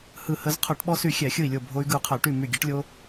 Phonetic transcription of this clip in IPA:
h ɯ˧˩ h ə˧ z qʰ o˧˩˧ ʈ ɓ ɔ˧ s y˧˩ xʲ ɛ˧˩˧ xʲ ɯ˧˩ i̯ lʲ o˧˩ bʱ o˧ y̯ ɡ ɯ˧˩ u̯ qʰ ə˧˩˧ y̯ ʈ y˧˩ m y˧˩ ɡʲ ɛ˧ ʈ lʲ o˧

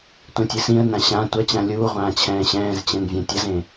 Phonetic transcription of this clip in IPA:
tʷ ɛ̃ tʲ ɨ s ĩ ə̯ n ã ɕ ã tʷ ɐ t͡ɕ ã lʲ uː ʁʷ ãː t͡ɕʰ ɛ̃ː ɕ ɛ̃ː z t͡ɕ ɛ̃ n vʲ ã tʲ ɐ z ẽ

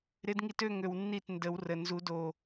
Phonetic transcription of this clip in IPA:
ɾ ɪ˧˥ d ŋ i˧ t ø˥˧ ŋ ø˧ w nː i˥˩ t n d ə˨˩˦ w r ə˨˩ n z u˨˩˦ d o˨˩

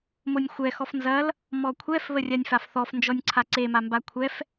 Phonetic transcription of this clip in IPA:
m o nʲ xʷ ɛ x ɔ f n z ɐ l | m ɔ kʷʰ ɛ f β ə rʲ a nʲ f a f θ ɔ f n d͡ʒ ɔ nʲ ǀʰ a ǀ e m a m b a kʷʰ ɛ f

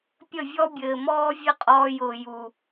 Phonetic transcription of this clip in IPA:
pʲ ə˦˨ vʲ ɔ˦ bʲ ɘː˨ m ɔː˦ vʲ ɘ˦ qʼ ɔː˧ j ʊː˨ j u˨

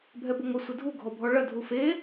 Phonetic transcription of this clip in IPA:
bʱ ɛ b o ŋʷ ɘ sʷ ɘ dʱ u ɡʱ ɔ bʱ ɔ ɭ ɐ dʱ u f e

